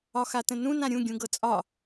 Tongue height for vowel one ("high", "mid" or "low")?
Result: low